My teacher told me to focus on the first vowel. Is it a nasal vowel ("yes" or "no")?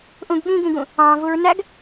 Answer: yes